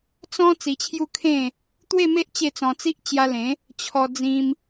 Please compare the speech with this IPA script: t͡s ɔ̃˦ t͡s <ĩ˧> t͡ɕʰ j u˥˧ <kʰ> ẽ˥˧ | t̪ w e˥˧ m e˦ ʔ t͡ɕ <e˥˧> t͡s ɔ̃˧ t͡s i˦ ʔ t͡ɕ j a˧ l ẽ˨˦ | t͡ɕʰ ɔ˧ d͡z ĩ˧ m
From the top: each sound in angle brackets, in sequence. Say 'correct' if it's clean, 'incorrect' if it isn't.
incorrect, correct, correct

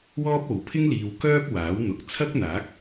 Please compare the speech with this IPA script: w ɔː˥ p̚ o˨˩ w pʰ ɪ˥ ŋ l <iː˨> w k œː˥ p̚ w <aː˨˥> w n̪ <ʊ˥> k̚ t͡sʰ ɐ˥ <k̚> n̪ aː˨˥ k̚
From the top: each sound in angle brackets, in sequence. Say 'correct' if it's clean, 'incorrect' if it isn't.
correct, correct, incorrect, correct

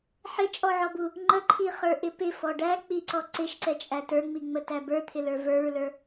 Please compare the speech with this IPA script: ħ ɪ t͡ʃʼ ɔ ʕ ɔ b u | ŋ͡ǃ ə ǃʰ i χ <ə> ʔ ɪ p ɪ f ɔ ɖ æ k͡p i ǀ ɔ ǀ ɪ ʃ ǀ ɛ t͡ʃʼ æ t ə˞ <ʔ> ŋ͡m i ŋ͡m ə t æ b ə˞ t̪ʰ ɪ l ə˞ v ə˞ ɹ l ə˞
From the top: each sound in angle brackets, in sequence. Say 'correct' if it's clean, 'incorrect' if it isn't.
incorrect, incorrect

